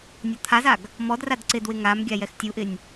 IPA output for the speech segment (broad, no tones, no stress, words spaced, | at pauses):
nʲɔt̪ʰazaɡ | mɔd radǀɪdwɪ ŋamɡʲa jɛxtʲuʔɪnʲ